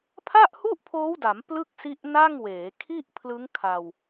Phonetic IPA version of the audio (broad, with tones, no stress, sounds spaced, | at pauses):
pʰ a˥˩ ʔ h u˥˩ ʔ pʰ oː˦˥ w d a˩˦ m p l ɯ˥˩ k̚ s i˦˥ ʔ n a˥˩ ŋ w eː˩˦ kʰ i˥˩ ʔ pʰ l ɯ˦˥ ŋ kʰ a˧ w